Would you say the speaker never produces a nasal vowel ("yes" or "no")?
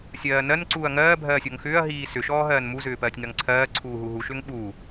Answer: yes